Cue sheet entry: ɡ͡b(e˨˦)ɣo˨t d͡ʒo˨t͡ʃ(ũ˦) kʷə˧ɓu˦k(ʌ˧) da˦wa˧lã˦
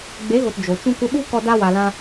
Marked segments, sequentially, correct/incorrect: correct, correct, incorrect

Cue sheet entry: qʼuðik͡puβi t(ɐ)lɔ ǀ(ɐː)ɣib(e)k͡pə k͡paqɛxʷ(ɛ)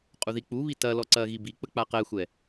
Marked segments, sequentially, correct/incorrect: correct, correct, incorrect, correct

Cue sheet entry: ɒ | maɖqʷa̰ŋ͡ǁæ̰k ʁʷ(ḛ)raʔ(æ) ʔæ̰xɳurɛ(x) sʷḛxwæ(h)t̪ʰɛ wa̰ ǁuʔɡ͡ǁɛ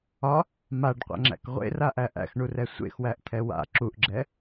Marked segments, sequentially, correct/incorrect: correct, correct, incorrect, incorrect

